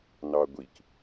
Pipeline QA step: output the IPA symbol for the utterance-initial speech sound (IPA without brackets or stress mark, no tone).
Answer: n